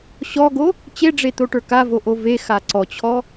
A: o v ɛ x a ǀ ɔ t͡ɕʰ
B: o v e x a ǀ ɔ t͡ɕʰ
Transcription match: B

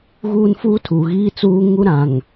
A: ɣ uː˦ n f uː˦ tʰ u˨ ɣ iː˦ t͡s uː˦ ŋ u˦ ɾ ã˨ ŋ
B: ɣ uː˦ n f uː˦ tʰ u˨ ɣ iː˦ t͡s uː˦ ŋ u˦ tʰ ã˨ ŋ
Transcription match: A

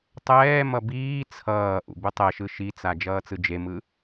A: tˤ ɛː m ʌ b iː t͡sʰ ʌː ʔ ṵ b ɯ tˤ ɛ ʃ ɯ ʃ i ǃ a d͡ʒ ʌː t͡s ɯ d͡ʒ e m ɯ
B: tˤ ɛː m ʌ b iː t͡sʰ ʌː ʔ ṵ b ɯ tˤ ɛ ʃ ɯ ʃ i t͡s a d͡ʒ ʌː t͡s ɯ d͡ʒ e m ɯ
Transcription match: B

